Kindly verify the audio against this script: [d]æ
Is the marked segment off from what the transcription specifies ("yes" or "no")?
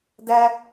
no